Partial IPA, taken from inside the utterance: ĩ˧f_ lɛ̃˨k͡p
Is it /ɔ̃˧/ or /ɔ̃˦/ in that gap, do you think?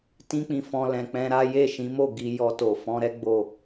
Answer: ɔ̃˧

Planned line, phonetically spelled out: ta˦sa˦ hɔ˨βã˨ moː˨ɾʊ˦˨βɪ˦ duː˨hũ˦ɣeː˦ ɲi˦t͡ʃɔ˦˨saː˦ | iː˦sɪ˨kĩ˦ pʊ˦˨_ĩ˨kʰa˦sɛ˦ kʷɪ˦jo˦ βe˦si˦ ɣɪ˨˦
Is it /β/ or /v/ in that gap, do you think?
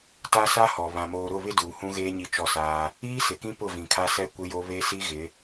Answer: v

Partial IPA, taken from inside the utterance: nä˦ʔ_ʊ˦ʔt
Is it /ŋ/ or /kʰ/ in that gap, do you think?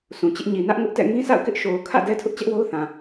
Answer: ŋ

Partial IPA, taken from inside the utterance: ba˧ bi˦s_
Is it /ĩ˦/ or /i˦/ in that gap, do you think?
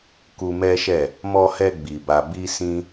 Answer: ĩ˦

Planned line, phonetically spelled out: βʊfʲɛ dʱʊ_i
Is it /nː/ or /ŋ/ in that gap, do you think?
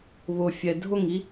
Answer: ŋ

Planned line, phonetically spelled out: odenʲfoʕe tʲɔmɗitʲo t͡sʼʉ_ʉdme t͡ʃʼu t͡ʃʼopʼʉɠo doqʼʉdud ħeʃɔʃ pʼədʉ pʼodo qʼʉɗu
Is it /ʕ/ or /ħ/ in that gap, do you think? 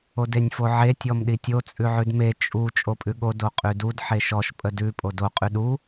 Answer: ʕ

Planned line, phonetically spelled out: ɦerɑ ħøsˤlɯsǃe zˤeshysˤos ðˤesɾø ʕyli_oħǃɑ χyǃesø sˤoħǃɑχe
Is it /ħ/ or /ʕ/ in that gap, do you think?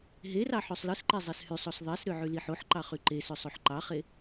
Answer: ħ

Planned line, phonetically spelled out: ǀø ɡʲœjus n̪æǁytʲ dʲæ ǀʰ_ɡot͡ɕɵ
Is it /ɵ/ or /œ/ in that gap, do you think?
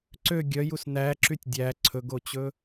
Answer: ɵ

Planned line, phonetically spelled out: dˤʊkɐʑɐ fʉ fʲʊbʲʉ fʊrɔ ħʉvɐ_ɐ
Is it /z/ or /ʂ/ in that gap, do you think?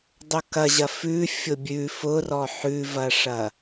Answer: ʂ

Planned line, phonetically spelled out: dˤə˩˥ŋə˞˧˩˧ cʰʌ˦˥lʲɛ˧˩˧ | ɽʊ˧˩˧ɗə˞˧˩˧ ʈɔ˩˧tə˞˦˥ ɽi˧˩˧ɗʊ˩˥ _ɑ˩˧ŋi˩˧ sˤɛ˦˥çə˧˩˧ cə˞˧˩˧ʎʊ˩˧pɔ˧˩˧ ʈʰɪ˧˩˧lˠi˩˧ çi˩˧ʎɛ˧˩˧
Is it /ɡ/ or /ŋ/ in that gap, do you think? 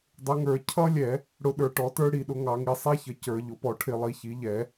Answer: ŋ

